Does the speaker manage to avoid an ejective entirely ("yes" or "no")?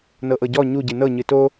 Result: yes